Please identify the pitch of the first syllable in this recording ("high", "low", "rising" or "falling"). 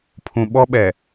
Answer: low